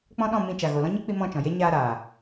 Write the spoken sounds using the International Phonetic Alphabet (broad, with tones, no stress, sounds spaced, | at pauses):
k͡p ɔ̃˦ ɗ ɔ̃˦˨ m ĩ˧ t͡ʃ a˨ ɣ o˨ l ɔ̃˦ ɲ i˦ k͡p i˧ m ɔ̃˦˨ t͡ʃ ɔ̃˨ j e˦ ɲ aː˧ ɾ aː˨